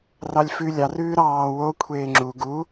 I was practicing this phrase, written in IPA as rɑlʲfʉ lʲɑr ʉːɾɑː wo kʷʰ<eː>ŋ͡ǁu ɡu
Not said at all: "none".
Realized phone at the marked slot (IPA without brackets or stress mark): eː